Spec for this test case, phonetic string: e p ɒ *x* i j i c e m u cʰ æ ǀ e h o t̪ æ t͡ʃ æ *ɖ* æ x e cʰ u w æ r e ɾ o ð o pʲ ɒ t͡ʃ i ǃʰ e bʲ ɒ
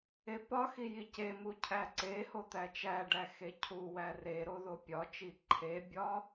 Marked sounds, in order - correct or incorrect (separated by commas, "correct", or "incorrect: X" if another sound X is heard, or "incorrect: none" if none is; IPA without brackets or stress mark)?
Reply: correct, correct